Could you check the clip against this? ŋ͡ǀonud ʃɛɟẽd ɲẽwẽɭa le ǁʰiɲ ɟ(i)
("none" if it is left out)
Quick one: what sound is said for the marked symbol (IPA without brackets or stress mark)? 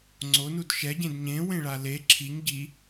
i